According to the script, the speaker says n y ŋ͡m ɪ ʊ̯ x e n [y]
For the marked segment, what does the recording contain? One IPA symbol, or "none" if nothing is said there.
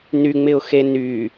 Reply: y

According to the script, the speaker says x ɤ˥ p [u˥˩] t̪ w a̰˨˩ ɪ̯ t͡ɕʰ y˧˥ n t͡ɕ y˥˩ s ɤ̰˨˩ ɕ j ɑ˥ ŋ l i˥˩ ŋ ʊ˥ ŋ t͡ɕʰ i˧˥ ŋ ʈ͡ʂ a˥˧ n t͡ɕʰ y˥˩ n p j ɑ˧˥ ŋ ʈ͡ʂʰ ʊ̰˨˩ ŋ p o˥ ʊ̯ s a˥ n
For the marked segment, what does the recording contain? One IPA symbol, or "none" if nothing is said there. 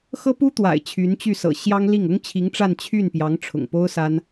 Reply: u˥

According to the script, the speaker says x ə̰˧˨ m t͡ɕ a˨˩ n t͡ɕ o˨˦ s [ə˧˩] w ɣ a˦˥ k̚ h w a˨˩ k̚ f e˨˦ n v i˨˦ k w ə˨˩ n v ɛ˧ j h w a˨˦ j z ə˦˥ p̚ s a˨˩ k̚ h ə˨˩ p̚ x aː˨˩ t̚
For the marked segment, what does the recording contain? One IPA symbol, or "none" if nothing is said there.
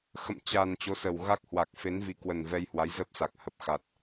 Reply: ə˨˩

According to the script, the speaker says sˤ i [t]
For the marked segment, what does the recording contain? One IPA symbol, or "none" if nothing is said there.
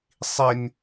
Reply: n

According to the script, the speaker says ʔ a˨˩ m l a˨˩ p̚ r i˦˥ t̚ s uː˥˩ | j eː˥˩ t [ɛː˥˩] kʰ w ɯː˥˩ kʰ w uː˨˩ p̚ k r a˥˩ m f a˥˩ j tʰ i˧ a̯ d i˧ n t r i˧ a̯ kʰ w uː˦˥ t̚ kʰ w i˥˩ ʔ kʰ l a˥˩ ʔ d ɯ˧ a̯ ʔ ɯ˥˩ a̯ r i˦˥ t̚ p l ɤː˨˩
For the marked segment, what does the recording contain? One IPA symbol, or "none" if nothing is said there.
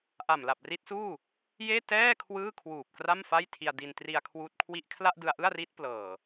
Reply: ɛː˥˩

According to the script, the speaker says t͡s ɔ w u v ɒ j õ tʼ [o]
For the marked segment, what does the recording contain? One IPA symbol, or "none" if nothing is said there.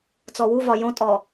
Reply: ɔ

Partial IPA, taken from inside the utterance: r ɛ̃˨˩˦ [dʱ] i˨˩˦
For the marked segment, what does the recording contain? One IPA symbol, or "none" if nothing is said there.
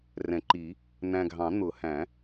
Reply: ǃ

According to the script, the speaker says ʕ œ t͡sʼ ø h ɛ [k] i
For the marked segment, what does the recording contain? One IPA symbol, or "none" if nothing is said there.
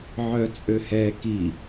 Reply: k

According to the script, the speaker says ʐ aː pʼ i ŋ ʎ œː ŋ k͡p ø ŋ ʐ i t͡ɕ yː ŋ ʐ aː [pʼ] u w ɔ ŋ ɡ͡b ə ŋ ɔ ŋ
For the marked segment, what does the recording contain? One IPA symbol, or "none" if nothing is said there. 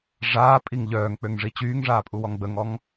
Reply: pʼ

